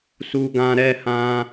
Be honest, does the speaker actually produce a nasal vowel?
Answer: yes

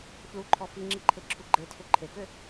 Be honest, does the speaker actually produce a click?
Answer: yes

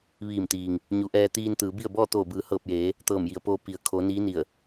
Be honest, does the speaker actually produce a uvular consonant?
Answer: no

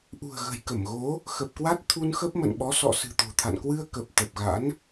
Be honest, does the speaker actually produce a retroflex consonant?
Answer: no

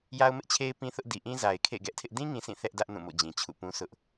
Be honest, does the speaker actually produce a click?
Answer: no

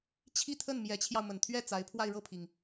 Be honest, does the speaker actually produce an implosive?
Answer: no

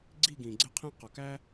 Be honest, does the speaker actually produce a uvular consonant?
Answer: yes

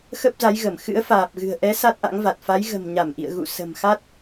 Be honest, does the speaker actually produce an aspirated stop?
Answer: no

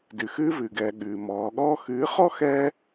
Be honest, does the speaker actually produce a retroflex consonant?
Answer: no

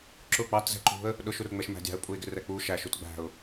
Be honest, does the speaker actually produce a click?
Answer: yes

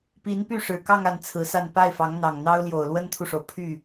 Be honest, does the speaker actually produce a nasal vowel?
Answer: no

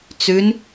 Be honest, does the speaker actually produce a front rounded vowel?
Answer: no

